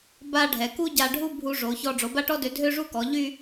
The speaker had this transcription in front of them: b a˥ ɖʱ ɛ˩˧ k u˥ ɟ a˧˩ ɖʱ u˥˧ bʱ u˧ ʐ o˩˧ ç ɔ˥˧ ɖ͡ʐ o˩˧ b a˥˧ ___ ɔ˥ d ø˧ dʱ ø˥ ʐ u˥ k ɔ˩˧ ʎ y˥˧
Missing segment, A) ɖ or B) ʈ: B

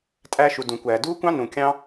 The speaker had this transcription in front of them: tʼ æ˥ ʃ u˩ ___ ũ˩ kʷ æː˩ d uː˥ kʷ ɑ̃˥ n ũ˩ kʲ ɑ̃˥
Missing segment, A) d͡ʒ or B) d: B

